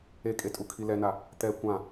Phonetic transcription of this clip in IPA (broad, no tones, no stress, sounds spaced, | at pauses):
e kʼ e tʼ u kʰ i l ɛ n a | t̪ ɛ kʷ ã